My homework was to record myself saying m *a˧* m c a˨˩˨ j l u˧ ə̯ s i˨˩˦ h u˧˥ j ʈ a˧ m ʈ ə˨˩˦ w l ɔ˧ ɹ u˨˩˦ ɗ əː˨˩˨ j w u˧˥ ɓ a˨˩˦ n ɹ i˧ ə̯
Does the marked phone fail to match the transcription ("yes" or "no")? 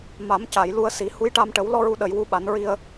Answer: yes